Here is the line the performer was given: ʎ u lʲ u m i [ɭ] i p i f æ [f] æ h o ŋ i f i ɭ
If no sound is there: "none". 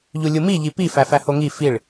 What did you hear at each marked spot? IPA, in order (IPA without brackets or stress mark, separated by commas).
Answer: ʎ, f